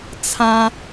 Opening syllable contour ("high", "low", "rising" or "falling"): high